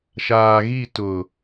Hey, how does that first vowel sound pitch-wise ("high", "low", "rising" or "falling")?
low